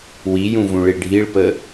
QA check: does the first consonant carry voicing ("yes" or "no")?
yes